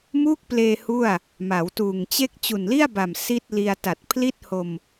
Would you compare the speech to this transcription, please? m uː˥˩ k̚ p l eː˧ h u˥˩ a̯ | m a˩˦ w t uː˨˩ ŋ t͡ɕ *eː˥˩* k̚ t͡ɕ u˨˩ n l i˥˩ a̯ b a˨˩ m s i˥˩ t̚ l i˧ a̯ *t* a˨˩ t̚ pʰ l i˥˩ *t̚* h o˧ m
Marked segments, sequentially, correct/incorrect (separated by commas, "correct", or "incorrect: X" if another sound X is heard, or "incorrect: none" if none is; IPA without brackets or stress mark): incorrect: e˥˩, correct, correct